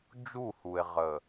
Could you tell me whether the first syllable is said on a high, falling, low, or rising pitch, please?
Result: falling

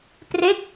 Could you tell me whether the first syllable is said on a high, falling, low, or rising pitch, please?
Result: falling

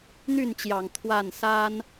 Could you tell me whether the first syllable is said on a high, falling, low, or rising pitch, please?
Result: falling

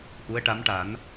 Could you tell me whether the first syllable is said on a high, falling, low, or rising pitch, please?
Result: rising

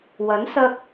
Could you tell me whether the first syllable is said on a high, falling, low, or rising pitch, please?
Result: rising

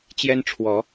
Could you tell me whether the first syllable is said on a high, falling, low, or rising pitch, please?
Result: high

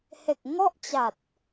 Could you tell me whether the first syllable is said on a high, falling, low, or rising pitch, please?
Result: low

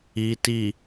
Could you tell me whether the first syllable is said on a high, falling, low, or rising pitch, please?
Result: low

